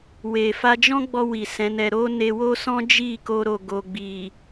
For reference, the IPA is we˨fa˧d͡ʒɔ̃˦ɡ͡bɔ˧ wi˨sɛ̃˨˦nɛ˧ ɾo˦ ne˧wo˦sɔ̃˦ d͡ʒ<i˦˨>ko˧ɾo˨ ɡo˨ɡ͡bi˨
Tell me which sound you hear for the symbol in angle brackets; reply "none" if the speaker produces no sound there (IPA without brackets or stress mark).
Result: i˦˨